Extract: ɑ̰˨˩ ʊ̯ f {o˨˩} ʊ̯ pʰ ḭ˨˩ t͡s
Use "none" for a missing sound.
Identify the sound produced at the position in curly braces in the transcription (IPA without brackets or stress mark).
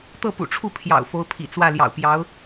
o˧˥